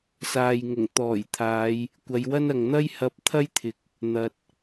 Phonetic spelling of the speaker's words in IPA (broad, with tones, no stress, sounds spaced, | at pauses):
s aː˨ j ŋ ʊ˨˩ ŋ t̪ ɔː˨˩ j t̪ʰ aː˨˧ j | kʷ ɐ˨˧ j w ɐ˥ n ɐ˨ ŋ n̪ ɐ˥ j h ɐ˧ p̚ t̪ʰ ɐ˥ j t̪ʰ ɪ˨˥ k̚ | n̪ ɐ˨ t̚